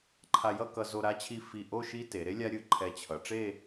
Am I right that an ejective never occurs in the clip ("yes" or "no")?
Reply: yes